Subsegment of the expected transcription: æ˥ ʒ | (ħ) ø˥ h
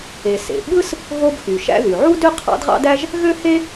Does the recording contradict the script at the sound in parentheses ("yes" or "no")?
yes